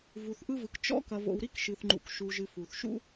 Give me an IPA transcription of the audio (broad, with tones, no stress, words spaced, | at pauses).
vu˨θʔɯ˦vɯ˨k t͡ʃɔ̰˦ kɐ˨vo̰˨w ɾi˦kʃɨ˨θŋ͡ǃṵ˨k ʃu˧ʒɨ˧fu˨θ ʃṵ˦